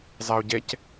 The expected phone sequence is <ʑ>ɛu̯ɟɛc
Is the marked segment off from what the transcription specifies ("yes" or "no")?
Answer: yes